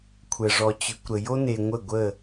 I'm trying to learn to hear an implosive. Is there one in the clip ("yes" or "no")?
no